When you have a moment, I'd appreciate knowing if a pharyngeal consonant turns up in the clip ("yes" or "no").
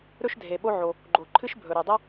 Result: yes